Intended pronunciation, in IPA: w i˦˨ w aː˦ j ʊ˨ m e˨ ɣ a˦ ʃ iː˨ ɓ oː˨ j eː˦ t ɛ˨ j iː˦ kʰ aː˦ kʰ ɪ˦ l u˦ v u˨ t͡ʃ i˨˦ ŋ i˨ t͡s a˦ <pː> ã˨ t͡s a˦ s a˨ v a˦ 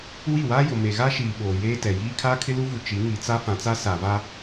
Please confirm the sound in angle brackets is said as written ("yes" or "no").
no